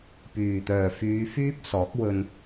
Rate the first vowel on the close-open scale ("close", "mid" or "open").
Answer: close